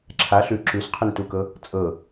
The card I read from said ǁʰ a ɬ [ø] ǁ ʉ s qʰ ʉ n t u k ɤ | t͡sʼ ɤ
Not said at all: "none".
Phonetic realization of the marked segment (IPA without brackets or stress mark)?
ʉ